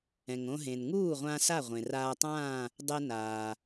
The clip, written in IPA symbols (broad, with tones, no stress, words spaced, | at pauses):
ɛ̃˩ŋõ˧ɦẽ˩n ŋuː˥˨ʁʷã˧ sa˥˨ʁʷẽ˩raː˧tˤãː˥˨ | dˤɛ˧naː˩